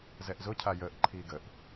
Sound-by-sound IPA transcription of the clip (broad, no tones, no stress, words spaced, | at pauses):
zɛʔzʊcʰa jəːʔǃʰiː ɡəʔ